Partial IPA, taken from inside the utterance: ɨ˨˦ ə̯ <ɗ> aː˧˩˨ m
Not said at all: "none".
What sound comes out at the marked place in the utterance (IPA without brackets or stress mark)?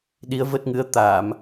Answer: t̪